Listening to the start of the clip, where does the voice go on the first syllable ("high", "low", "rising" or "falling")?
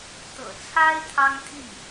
low